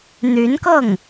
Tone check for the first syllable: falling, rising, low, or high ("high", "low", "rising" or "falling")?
rising